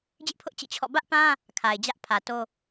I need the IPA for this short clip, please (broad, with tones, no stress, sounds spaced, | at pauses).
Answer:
d͡ʑ ɪ˦ ʔ pʰ ʊ˦ ʔ t͡ɕ ḭ˦˨ t͡ɕʰ ɔ̰˦˨ b ä˦ ʔ p ã˦ | kʰ a˨ ɪ̯ d͡ʑ ä˦ ʔ pʰ ä˨ t o˦